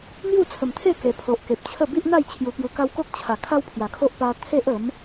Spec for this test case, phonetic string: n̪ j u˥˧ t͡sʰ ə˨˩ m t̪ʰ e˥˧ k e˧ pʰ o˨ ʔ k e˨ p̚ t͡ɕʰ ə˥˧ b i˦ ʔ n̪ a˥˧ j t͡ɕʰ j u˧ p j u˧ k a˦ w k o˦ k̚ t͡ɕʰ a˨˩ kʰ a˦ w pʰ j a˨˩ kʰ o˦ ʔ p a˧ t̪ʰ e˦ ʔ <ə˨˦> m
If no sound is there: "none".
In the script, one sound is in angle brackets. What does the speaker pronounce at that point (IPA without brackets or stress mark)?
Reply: ə˨˦